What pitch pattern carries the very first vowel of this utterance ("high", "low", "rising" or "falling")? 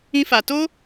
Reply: high